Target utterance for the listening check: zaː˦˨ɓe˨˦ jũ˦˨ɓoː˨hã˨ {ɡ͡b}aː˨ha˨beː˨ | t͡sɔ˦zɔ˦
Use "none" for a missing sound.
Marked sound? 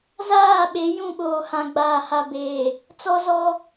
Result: ɡ͡b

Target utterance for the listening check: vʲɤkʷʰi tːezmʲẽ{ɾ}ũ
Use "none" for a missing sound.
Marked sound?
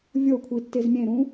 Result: ɾ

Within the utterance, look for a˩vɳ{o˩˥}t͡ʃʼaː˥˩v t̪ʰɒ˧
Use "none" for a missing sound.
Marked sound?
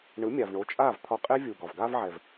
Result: o˩˥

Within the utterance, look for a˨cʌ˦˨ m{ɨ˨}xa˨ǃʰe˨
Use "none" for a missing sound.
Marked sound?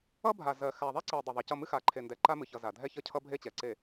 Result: ɨ˦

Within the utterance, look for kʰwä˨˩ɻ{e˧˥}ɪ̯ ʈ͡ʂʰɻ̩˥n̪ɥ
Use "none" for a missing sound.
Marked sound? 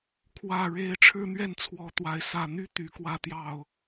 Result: e˧˥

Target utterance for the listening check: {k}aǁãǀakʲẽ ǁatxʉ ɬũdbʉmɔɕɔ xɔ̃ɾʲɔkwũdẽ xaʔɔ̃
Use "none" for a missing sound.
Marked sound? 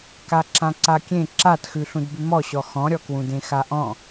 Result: k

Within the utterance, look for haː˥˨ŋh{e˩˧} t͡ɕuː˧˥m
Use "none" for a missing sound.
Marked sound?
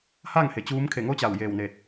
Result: e˩˧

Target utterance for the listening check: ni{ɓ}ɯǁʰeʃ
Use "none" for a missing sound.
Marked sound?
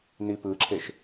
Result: p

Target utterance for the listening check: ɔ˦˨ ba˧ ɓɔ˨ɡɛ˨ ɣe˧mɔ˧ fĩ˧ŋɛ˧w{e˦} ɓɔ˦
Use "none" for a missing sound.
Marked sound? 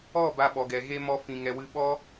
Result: ɨ˦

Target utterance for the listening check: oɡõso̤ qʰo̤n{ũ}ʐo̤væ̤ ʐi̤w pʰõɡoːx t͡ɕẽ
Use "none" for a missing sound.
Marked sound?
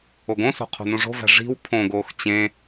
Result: ũ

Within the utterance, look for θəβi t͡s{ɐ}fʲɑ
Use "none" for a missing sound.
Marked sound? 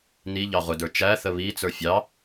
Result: ə˞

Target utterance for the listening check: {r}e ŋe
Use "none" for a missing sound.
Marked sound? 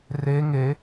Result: r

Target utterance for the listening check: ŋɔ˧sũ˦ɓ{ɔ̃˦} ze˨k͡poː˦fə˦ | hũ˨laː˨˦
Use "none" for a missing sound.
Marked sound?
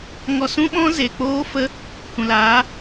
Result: ɔ̃˦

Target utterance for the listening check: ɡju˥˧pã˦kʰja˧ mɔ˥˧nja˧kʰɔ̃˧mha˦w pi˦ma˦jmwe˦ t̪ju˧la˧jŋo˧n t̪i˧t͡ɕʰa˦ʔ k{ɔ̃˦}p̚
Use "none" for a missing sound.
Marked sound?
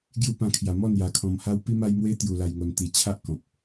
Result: ɔ̃˨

